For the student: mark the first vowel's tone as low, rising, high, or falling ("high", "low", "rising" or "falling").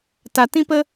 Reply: low